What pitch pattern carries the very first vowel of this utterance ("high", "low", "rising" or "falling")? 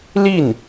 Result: falling